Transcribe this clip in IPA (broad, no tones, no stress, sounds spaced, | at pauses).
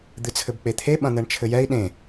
d̪ ɨ t͡sʰ ɘ b k͡p e t̪ʰ e ɓ ɐ̃ n̪ ɛ ɳ t͡ʃʰ ɘ j ɛ i̯ ɗ ẽ